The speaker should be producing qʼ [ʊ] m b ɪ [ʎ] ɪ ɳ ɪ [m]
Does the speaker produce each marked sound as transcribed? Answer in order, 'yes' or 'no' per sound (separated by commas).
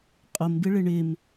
yes, no, yes